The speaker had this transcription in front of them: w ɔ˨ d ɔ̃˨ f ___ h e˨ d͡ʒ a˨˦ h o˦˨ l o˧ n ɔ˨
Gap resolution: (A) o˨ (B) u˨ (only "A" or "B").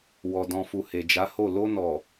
B